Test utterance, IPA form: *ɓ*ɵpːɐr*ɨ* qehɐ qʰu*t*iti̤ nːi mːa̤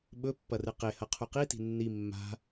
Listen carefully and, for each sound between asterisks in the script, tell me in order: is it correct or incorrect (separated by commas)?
correct, correct, incorrect